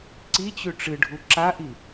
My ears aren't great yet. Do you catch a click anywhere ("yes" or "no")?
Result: yes